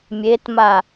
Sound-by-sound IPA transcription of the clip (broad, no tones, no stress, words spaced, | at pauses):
mʲetma